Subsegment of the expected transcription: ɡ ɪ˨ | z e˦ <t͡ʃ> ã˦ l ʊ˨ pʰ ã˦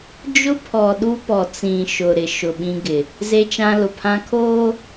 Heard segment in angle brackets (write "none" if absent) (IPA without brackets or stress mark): t͡ʃ